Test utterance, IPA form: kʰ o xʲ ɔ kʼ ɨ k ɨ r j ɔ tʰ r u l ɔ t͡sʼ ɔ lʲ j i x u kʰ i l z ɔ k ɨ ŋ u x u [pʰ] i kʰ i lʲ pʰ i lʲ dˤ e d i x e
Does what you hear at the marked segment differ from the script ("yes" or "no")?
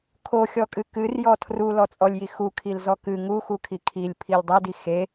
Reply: yes